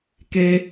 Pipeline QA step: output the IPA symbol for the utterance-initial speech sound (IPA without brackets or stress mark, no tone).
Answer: k